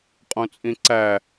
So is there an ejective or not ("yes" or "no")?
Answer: yes